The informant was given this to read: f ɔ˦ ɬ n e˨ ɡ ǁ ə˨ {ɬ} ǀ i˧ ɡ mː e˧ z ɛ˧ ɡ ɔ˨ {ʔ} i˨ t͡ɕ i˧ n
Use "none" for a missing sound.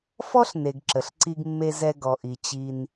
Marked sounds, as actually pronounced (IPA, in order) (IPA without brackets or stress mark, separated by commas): ɬ, ʔ